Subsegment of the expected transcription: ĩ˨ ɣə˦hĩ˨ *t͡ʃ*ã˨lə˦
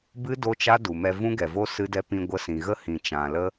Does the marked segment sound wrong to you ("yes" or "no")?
no